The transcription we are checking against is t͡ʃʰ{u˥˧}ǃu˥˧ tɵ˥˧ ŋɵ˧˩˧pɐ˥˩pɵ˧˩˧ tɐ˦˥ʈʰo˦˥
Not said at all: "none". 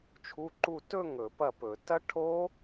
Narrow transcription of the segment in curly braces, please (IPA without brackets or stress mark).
u˧˥˧